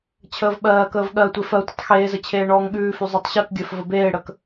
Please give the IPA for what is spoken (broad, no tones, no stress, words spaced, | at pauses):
t͡ɕʰəːvɓɜːkəːv ɠɜtʷe fɜtʷətˤ xeːzə t͡ɕʰeːɳɔːŋɠʉːfʉ zˤʉtˤɕɜkɡʲɜf vəbeːɽək